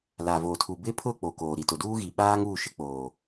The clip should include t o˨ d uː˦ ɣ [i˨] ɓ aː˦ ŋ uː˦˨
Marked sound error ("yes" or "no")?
no